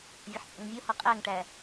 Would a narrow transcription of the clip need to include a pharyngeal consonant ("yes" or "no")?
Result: yes